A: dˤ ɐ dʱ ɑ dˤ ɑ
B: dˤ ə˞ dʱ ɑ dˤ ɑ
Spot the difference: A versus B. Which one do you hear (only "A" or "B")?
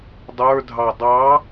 B